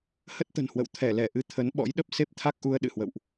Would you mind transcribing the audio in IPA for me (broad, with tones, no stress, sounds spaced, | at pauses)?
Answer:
h ə˦˥ t̚ t̪ ə̤˨˩ n h w ə̰˧˨ w t̪ʰ ɛ˧˩ l ɛ˧˩ ʔ ɨ˧ t̪ʰ ə˨˦ n ɓ ɔ̰˧˥ j ɗ ə˦˥ p̚ s e˦˥ p̚ t̪ʰ a˦˥ k̚ ʔ u˧ ə̯ ɗ ɨ̰˧˨ h w ə̰˧˨ w ʔ